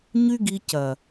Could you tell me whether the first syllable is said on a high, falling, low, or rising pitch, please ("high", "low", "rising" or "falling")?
high